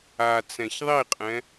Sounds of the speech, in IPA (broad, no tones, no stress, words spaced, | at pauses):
a t͡sɛ̃çðˤiqʼɛ̃